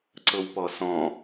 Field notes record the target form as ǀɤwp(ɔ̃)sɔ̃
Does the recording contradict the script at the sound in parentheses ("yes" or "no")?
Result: yes